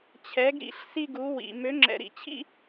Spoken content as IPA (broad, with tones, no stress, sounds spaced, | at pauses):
t͡ɕʰ ɛ˩˥ ɡ ɾ ḭ˧˩˧ ɬ s i˥˧ ɡ u˩˥ w ḭ˩ m ø˩˥ ŋ͡ǁ ɛ̰˩ ɾ ḭ˩ t͡ɕʰ ḭ˥˧